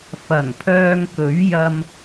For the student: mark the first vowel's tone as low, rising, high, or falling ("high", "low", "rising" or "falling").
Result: low